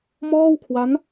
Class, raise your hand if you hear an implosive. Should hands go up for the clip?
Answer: no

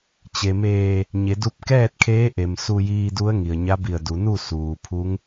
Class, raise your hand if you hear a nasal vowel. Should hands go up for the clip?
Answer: no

